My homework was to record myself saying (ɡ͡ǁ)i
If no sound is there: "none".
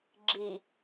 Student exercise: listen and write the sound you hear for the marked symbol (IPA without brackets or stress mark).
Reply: ɡ͡ǁ